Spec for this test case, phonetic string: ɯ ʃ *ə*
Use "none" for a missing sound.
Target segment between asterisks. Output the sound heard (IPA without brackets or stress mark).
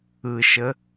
ə